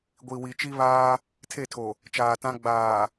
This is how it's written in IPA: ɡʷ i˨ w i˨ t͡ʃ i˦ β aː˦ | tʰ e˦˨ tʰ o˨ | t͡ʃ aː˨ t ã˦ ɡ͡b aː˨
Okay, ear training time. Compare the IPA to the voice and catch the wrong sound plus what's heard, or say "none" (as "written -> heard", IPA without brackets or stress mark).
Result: none